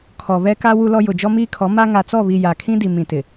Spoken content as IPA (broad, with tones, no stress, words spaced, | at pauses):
kʰɔ˨βɛ˦ka˦ wu˦lɔ˦ jʊ˨d͡ʒɔ˦miː˦kʰɔ˨˦ ma˦ ŋa˨t͡sɔ˦˨βi˨ ja˨kʰĩ˦di˨ mĩ˨tɪ˨